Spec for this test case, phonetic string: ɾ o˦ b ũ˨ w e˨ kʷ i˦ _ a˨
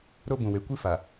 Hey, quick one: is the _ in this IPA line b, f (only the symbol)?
f